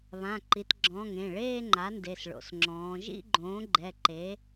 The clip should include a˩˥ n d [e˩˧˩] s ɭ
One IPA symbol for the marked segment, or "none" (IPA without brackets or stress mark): e˩˧˩